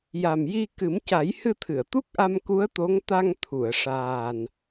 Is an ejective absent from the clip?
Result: yes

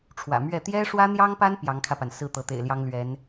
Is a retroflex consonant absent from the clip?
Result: no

